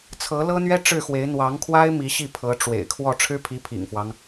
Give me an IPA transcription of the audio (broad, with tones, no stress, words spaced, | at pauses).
t͡sʰɤ˧˥lɤ˥n̪ɥɛ˥ ʈ͡ʂɻ̩˥˩xwe˧˥ɪ̯ n̪wɑ˧˥ŋkʰwa˥ɪ̯ mi˧˥ɕi˥˩pʰɤ˧˥ ʈ͡ʂwḛ˨˩ɪ̯kʰwɔ˥˩ ʈ͡ʂʰɻ̩˥pʰi˧˥pʰḭ˨˩ŋfwɑ˦ŋ